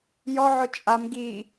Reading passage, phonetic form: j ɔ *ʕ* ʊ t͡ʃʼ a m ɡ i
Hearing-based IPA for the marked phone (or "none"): ʕ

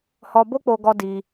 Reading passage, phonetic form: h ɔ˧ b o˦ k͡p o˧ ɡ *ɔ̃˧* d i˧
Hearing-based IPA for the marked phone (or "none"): ɔ˧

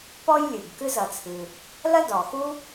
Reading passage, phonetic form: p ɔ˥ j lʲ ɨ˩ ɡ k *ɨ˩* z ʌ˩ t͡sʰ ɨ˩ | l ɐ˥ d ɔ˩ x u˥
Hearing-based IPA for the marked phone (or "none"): ɨ˥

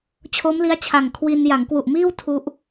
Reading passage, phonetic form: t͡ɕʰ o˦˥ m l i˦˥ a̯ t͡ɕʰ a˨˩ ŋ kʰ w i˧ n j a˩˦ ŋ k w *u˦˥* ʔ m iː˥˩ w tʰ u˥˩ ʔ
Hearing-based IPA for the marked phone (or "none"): u˨˩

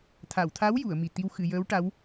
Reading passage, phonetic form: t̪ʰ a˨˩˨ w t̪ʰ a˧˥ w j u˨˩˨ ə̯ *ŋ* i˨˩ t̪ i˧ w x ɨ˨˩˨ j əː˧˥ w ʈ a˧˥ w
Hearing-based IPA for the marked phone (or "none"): m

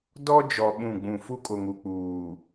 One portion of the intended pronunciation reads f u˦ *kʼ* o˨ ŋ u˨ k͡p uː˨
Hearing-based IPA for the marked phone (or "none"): kʼ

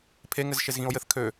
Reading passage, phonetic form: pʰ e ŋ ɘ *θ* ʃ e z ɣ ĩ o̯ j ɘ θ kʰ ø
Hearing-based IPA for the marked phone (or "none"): z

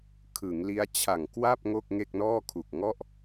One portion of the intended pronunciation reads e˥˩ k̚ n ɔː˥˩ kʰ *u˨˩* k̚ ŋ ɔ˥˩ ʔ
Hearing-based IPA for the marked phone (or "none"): u˨˩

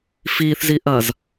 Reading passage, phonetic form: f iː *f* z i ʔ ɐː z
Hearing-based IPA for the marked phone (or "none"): θ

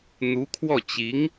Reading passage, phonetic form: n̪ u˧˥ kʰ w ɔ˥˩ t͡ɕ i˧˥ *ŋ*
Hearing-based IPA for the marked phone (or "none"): ŋ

